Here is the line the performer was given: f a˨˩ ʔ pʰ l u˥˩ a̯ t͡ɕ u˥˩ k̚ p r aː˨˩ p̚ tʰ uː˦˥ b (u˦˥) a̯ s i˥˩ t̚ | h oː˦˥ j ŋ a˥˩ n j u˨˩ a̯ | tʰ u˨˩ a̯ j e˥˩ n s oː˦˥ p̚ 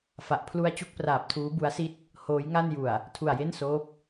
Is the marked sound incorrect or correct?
correct